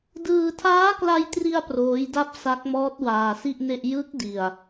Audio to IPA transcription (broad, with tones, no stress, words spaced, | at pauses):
dɯː˧tʰaː˦˥kla˧jtri˧a̯ proː˦˥jda˥˩p̚ sa˦˥k̚mɔː˦˥t̚ waː˧si˥˩ʔne˥˩ʔ jɯ˦˥k̚ di˧a̯